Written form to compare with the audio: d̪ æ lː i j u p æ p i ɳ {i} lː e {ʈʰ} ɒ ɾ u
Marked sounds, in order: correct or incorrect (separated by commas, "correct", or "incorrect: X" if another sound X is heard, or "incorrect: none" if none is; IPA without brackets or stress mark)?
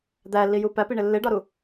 incorrect: e, incorrect: ɖ